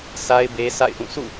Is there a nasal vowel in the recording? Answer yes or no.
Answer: yes